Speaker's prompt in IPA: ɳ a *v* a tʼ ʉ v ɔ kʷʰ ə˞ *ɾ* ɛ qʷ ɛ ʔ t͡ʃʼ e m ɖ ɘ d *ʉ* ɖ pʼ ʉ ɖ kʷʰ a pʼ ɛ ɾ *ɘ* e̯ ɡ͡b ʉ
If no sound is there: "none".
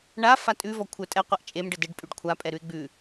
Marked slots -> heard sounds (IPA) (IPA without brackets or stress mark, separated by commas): f, tʼ, ɘ, ʉ